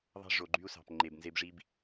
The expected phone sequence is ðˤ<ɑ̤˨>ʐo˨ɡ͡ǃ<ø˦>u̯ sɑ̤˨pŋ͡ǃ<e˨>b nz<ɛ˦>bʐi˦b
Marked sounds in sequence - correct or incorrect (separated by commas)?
incorrect, incorrect, correct, incorrect